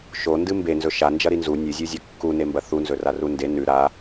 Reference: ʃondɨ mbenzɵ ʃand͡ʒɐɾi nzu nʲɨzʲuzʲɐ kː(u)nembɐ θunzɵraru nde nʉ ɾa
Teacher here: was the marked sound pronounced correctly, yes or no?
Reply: yes